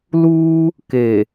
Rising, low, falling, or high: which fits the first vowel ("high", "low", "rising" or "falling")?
high